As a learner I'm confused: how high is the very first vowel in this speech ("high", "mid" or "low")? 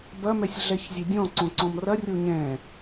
low